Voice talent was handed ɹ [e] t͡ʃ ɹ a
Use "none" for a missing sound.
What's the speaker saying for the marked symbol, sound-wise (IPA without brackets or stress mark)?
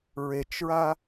e